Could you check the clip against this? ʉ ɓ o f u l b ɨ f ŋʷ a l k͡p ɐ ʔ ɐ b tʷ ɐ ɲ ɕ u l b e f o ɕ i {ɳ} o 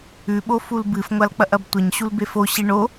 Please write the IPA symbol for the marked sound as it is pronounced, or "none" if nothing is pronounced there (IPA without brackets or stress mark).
ɳ